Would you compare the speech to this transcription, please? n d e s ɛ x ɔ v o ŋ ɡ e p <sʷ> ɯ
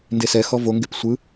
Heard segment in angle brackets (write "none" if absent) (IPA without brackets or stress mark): sʷ